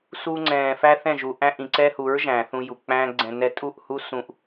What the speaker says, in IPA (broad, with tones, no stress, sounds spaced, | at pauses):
s u˧ ŋ͡ǀ ɛ̃ː˨ f æ˦ θ ɛ̃˦˨ ʒ u˨ ʔ æ̃˦ ʔ ĩ˨ ǀ ɛ˦ h u˨˦ ɹ ʒ æ̃˨ θ ũ˧ j u˨ k͡p æ̃ː˦ ɡ͡ǀ ɛ̃˧ n ɛ˦ tʼ u˦˨ ʔ h u˦ s ũ˧ ʔ